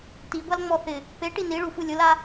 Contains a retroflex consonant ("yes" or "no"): yes